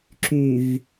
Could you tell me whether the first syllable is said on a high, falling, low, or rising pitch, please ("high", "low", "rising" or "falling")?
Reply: low